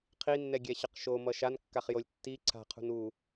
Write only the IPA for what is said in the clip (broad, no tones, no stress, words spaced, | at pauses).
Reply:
qʰinːɛɡʲɛɕʌq ʃomʌ ʃankːaχjolʲ tːi ǀʰa̤qʰṳn u